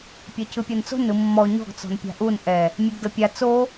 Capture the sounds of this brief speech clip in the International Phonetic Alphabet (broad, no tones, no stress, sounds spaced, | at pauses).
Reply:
pʲ ɛ c ɯ pʲ ɤ n t͡s o̤ n ɯ mː ɔ ɲ ɔ̤ ɡ t͡s ɔ̤ n pʲ a̤ ʔ u n ʔ ɛ | mʲ e ɡ d ɤ pʲ a t͡s o